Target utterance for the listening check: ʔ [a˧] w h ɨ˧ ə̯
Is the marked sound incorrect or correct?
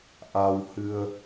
correct